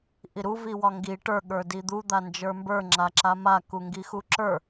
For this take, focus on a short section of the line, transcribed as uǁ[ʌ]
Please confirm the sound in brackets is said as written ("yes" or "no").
no